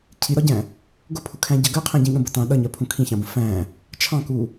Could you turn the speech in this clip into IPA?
cʰiɾɒɟæ̃ | ɡʊpʰʊkʰæ̃ɟɜ ɡɜqʰæ̃ɟĩɠə̃ bətɑ̃ ɗʌɲɜ pʰũkʰĩçɑ̃bə̃ fæ̃ | t͡ʃʰɑ̃ku

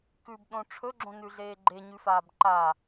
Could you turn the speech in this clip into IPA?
kʉbɗõ ʈ͡ʂʰɵɡ͡ǁõnʉɮeː ɡ͡ǃeɲʉfaːb ǃa

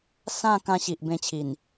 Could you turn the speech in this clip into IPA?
sã˥˧ kã˧ɕi˨ʔ bẽ˧t͡ɕʰi˨˩n

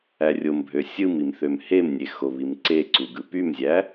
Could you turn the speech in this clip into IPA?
ærʲombʱø sʲɯmim θømhemnʲe xoβimǀeǀu ɡɯpymzʲæ

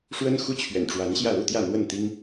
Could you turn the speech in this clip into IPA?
ʂwə˦n xu˦t͡ɕʰɥɛ̰˨˩nʈ͡ʂwa˨˦nɕjä˥˨ lu˥˨t̪jä˥˨n̪wə˥˨nt̪i˦ŋ

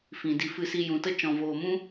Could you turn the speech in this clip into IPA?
fĩ˨di˧ fɨ˧si˧jũ˨tə˦ t͡ʃɔ̃˨voː˨mũ˦

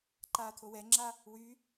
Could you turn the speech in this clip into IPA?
ǃaːt̪ʰowɛŋ͡ǁa | wy

